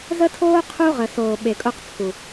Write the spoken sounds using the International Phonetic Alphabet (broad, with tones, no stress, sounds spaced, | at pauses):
z ə˦ tʰ oː˦ qʰ u˦ ʁ ə˨ s oː˨ ɓ e˨ kʼ o˦ q t͡sʰ u˨